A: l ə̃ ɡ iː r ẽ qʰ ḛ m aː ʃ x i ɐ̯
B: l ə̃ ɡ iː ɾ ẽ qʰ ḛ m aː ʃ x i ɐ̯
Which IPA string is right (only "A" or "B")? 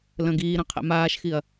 B